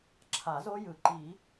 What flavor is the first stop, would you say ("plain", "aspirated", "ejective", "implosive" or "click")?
click